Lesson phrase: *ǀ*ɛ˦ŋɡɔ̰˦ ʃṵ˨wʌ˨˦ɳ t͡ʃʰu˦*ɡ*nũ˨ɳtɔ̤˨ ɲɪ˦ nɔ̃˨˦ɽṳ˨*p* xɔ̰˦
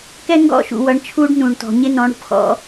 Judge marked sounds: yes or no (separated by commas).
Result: no, no, yes